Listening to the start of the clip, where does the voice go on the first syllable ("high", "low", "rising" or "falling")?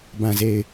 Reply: low